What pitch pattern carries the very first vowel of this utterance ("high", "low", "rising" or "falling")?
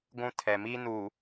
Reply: high